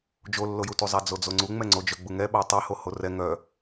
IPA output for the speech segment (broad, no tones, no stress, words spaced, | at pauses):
d͡ʒolːojutu zˤad͡zod͡zoŋ͡ǀu ŋ͡mɛŋ͡ǀod͡ʒœ ɡ͡buŋɛɓa tˤaho horɛ ŋœ